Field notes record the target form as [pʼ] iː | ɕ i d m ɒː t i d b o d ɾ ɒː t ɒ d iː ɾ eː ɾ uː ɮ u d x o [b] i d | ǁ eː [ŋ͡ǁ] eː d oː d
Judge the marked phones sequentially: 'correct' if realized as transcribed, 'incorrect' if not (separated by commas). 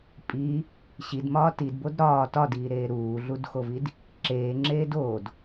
correct, incorrect, correct